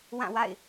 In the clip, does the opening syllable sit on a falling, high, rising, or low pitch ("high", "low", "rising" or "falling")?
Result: falling